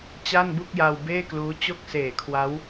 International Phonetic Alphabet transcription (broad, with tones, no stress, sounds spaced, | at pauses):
t͡ɕ a˥˩ n b u˥˩ k̚ j a˧ w b eː˥˩ k l uː˦˥ t͡ɕ o˥˩ k̚ s eː˨˩ kʰ w a˦˥ w